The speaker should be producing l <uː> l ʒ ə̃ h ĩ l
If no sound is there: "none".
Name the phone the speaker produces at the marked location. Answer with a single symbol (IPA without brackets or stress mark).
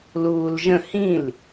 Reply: uː